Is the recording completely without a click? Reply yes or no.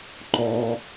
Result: no